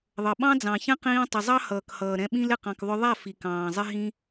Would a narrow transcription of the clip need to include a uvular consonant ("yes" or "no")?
yes